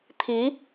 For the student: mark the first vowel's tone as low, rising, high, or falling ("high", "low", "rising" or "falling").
rising